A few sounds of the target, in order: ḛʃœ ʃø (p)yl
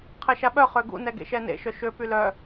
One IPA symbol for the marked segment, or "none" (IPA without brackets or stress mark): p